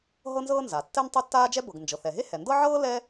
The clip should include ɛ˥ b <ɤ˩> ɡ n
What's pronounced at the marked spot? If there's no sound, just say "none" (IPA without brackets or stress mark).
ɤ˩